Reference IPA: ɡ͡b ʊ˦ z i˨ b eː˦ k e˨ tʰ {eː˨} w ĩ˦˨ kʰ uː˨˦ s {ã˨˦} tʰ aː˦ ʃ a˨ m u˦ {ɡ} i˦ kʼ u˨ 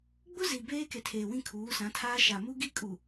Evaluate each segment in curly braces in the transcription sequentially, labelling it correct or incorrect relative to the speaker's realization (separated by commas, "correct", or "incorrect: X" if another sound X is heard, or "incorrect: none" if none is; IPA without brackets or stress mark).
correct, correct, correct